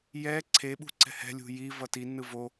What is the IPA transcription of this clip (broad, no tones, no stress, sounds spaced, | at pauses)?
j ɛ ǀʰ e ɓ ṳ ǀ ɛ̤ h ɛ̤ lʲ ṳ j i v ʌ t i n ɯ v o